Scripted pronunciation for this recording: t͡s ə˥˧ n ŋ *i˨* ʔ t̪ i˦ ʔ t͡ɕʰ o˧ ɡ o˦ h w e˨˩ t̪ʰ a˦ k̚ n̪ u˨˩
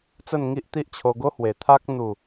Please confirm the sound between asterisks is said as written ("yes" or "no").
no